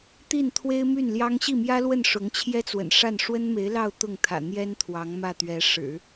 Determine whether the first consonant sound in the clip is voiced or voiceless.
voiceless